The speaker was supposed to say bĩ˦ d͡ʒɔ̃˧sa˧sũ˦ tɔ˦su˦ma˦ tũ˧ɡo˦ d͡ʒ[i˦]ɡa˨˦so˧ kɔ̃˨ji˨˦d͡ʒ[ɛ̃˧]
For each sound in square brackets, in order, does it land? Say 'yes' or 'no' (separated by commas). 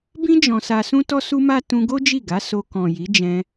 no, yes